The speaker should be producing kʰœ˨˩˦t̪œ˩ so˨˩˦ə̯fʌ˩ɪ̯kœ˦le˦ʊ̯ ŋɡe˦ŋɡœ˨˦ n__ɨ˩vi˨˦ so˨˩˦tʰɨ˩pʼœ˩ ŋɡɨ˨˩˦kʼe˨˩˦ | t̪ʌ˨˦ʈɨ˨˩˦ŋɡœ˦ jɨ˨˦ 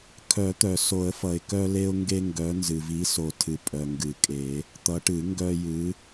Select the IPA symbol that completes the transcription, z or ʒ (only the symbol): z